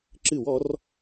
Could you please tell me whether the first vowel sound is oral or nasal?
oral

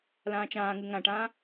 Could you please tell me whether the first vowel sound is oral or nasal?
nasal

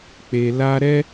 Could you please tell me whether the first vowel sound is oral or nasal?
oral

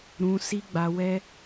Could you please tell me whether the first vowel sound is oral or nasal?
nasal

